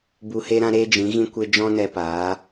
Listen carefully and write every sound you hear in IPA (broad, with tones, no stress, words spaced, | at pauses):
bu˧he˦ɾã˦ ɾe˦d͡ʒĩ˨˦ɣĩ˦kʷe˦ d͡ʒɔ̃˦nɛ˧paː˨˦